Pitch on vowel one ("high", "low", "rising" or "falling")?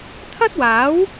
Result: high